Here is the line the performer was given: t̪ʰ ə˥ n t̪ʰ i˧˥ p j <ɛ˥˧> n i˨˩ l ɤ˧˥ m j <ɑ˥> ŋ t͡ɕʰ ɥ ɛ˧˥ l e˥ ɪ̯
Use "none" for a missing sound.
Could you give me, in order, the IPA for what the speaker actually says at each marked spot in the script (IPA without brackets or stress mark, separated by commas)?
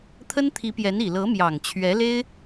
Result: ɛ˧˥, ɑ˨˩